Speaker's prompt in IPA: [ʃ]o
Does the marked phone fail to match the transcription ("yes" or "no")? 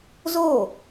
yes